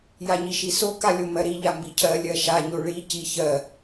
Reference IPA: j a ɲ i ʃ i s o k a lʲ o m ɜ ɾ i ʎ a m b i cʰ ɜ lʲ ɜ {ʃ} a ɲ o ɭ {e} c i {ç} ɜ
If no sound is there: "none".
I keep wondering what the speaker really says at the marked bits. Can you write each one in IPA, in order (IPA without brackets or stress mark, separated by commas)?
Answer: ʃ, i, ç